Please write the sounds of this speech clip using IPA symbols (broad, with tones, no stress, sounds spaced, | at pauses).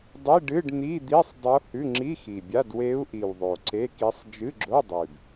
dˤ i˧˥˧ ɖ ɨ˧˥˧ ɖ n̪ i˧˥˧ d̪ i˧˥˧ sˤ dˤ o˧˥ h ʉ˧˥˧ ŋ͡ǁ i˧˥˧ x i˨˩ bʲ a˧˥˧ d w e˧˥ u̯ ʔ i˨˩ w ðˤ o˨˩ ǀ e˧˥˧ k i˧˥ sˤ d͡ʒ ɨ˧˥˧ ɡ͡ǁ o˧˥˧ dˤ ʉ˨˩ b